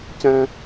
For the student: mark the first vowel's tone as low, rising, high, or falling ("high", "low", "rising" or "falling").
high